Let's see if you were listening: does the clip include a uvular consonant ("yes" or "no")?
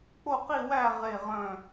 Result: yes